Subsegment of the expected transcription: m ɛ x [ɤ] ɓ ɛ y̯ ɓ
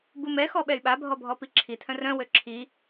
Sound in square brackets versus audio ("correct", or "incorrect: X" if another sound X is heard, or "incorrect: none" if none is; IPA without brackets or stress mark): incorrect: ɔ